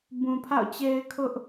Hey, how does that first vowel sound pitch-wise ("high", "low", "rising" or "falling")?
low